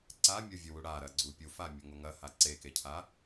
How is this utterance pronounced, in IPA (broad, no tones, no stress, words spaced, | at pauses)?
ǀamʲovʲuwu ɽaɾɐɡ͡ǀu pʲufamʲɐŋo ŋɐha ǀekecʰa